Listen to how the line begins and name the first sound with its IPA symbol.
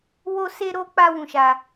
w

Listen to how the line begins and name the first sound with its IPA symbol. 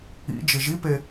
ḭ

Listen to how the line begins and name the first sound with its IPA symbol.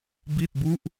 b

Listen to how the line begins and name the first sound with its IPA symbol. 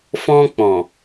f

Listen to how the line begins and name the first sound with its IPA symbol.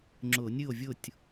ŋ͡ǁ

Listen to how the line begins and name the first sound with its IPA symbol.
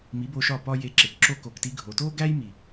m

